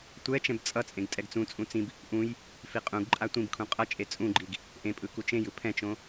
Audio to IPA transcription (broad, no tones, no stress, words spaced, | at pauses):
tʷɛ t͡ʃɛ̃bt͡sʼʌt͡sʼẽɡ tʼɛɡt͡sũt͡sʼũ t͡sĩb | ʔũj | fiqʼũɡǃʼa tʷĩbkʰũ qʼʌ t͡ʃʼet͡sʼũɡ͡ǃiɡ | ʔẽpʼɯ kut͡ʃẽjɯ pʰɛ̃t͡ʃõ